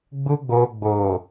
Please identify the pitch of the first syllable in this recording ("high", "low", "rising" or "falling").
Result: high